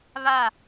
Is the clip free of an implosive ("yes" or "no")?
yes